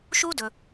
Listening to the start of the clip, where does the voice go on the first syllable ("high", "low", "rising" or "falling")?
high